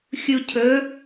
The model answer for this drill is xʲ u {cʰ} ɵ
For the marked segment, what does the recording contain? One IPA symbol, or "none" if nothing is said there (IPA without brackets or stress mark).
cʰ